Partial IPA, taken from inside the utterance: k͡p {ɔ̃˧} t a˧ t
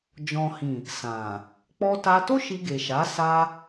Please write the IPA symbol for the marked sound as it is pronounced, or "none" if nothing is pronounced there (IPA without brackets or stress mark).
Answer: ɔ˧